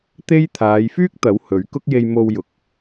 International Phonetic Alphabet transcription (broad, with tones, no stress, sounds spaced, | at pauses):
t̪ e˥ j t̪ʰ aː˨˧ j f yː˥ k̚ t̪ ɐ˨˥ w h ɵ˨˥ ɥ k ʊ˥ k̚ j e˧ j m o˧ w j ʊ˨˥ k̚